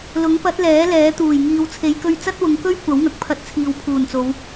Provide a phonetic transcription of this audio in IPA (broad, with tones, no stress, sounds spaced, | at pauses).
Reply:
l ʊ˨˥ ŋ p ɐ˨˥ t̚ l ɛː˨˥ l ɛː˨˥ t̪ uː˨˩ j ŋ iː˨ w t͡sʰ e˨˧ j k ɵ˧ ɥ t͡s ɐ˥ t̚ w ʊ˨˧ ŋ k ɵ˥ ɥ kʷ ɐ˨˥ w ŋ ɐ˨˥ k̚ pʰ ɐ˧ t̚ t͡sʰ iː˨ w pʰ uː˨˩ n t͡s o˨˧ w